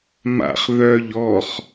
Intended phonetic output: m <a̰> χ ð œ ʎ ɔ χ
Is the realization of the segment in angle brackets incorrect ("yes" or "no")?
no